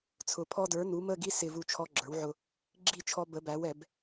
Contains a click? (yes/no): yes